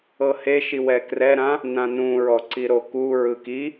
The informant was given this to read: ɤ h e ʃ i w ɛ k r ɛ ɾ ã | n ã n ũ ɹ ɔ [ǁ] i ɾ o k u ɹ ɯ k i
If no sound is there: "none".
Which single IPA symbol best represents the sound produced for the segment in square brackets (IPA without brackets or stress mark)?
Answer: ǀ